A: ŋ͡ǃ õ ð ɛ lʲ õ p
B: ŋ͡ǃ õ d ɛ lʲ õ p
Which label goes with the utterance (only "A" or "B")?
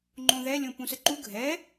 A